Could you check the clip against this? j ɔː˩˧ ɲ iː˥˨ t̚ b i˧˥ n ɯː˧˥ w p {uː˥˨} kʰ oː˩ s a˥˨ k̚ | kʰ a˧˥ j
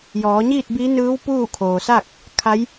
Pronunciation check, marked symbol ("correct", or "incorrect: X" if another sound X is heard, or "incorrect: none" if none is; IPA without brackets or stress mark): correct